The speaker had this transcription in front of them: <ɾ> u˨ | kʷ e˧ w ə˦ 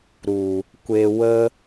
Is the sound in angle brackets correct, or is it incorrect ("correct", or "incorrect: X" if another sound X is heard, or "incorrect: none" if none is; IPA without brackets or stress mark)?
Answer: correct